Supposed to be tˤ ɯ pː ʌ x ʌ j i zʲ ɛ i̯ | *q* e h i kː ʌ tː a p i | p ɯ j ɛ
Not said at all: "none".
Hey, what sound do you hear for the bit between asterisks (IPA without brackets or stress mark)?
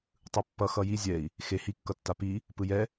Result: x